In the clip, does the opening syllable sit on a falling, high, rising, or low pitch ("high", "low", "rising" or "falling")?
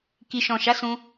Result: low